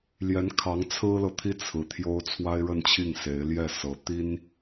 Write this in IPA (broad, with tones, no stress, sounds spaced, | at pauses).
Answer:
l j ɛ˧˥ n kʰ ɑ˧˥ ŋ t͡sʰ ɹ̩˥ l ɤ˨ t̪ʰ i˥ t͡sʰ ɹ̩˧˥ t̪ʰ j o˥ ʊ̯ t͡sʰ w a˥ ɪ̯ ɻ ə˥˧ n t͡ɕʰ i˥˩ ŋ s e˧˥ ɪ̯ l j ɛ˥˩ s ɤ˧˥ t̪ i˥ n